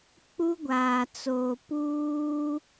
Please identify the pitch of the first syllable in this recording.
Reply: high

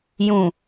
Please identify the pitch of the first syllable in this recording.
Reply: low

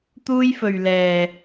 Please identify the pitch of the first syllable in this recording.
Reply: high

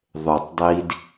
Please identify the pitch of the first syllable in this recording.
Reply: low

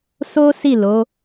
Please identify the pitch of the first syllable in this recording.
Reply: high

